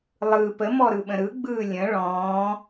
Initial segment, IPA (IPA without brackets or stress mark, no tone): lˠ